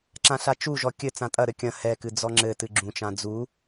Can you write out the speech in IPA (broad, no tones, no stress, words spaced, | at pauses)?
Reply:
ǁãɬat͡ʃuʒɔ kʲɘ t͡sãtʼɐɾɘ kʲɐ̃ hɛkɨ d͡zɔŋ͡ǁɘtɨ ɡ͡ǁũt͡ʃã d͡zu